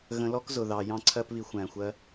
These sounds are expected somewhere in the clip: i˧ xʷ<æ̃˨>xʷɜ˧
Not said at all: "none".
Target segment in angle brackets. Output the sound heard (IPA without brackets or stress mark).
æ̃˨